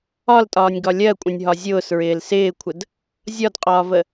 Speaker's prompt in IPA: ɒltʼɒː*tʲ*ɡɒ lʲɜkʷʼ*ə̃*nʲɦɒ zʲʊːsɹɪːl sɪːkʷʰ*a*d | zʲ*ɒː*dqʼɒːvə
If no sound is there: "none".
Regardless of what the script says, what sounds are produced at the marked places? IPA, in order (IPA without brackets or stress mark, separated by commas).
nʲ, ə̃, ə, ɒ